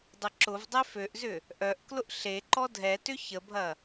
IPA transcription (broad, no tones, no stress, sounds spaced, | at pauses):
dˤ ə ǁ ʊ v dˤ e f ø ʔ z ʏ | ʔ œ ʔ k l ʊ ʔ ɬ e ǃ ɔ dʱ ɛ t ʏ ç ə bʱ ɐ